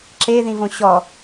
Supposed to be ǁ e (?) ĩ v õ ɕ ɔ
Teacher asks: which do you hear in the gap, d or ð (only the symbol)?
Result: ð